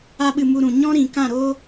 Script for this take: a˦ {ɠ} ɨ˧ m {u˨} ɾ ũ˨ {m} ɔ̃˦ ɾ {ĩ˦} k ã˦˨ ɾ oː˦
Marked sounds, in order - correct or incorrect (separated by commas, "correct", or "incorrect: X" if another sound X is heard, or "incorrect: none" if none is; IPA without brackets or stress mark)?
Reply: incorrect: ɓ, incorrect: u˧, incorrect: ɲ, incorrect: ĩ˨